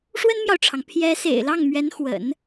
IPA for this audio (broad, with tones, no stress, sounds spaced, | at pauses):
ʂ w ə˥ n m j ɑ˨ ʊ̯ ʈ͡ʂʰ ɑ˩ ŋ pʰ j ɛ˧˥ s ḛ˨˩ ɪ̯ l ɑ˥˩ ŋ m ɥ ɛ˧˥ n x w ə̰˨˩˦ n